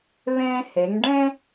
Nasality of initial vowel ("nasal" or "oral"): nasal